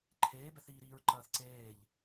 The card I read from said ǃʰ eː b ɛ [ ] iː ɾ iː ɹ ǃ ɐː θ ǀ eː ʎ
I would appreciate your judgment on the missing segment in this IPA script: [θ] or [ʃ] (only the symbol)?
θ